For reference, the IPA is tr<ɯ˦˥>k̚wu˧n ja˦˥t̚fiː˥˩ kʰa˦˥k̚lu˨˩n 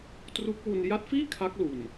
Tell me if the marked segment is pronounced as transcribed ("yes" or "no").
no